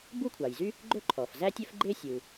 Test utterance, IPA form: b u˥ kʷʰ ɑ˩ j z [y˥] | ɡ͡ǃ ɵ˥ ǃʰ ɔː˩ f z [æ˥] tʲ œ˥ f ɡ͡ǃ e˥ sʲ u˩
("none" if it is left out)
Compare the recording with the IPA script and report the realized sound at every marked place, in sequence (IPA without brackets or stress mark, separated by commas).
y˥, æ˥